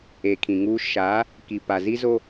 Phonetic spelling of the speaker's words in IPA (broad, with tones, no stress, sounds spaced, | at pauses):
e˨ kʰ ĩ˨ ŋ uː˦ ʃ aː˨˦ | k i˨ p a˨ z i˦ z o˦